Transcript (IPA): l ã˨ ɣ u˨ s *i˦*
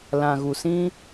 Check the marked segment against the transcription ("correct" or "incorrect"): incorrect